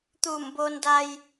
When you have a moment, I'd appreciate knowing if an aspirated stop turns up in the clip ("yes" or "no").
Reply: no